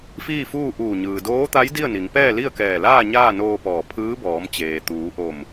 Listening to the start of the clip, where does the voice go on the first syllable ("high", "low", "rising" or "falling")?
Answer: falling